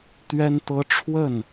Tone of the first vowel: high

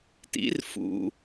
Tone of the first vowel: rising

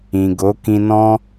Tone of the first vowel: low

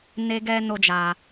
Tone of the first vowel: high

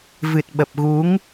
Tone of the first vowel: low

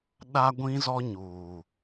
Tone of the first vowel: high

